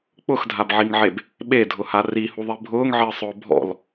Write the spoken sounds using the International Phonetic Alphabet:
k͡p ʊ x dʱ a b ʕ i ŋ ʕ e b | ɓ e dʱ ʊ h a r i h u ðˤ i bʱ ʊː ŋ ʕ ɪː sˤ ʊː bʱ ɔ̰ l

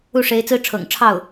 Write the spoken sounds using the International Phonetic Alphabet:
u˥˩ ʂ e˧˥ ɪ̯ t͡s ɹ̩˥ ʈ͡ʂʰ ɤ̰˨˩ ŋ ʈ͡ʂʰ ɑ˥˩ ʊ̯

